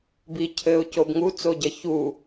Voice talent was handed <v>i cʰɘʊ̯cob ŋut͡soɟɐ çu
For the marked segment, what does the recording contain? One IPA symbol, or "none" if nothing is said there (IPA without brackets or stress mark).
b